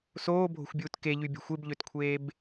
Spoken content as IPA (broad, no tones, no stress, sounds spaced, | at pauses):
s oː bʱ o̤ xʷ bʲ uː t k e ʎ y bʲ ɑ̤ xʷ e b ʎ ø t kʷʰ eː b